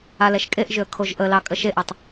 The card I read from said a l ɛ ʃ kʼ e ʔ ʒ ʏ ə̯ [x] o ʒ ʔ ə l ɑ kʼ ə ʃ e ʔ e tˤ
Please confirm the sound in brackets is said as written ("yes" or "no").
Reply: no